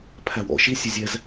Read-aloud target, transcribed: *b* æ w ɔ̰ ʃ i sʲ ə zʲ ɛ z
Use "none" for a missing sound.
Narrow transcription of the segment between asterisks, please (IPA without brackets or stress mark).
pʰ